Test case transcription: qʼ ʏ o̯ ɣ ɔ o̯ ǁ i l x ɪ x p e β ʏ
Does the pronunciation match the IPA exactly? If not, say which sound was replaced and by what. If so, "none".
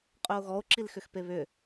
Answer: ɪ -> ʏ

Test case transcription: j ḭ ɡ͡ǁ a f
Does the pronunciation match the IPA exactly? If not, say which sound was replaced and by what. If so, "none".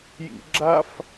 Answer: none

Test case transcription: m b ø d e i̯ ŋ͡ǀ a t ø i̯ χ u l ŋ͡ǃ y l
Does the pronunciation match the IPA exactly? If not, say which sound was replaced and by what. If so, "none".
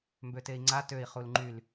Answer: d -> t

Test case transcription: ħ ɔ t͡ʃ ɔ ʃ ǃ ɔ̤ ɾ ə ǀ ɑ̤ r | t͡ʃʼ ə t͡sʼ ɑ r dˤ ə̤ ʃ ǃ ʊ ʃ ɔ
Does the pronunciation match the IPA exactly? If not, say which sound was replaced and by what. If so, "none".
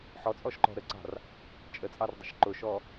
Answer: t͡ʃ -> t͡sʼ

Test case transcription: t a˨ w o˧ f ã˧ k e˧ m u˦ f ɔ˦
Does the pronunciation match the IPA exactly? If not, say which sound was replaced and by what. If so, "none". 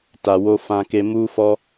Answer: none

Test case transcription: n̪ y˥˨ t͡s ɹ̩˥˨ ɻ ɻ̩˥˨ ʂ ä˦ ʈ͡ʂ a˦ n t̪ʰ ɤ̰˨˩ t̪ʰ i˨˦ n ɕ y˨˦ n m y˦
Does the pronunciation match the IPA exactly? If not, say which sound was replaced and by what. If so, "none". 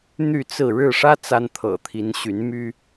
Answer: ʈ͡ʂ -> t͡s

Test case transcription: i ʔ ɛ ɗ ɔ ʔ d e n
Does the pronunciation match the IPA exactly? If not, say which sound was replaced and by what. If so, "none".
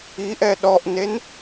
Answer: d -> n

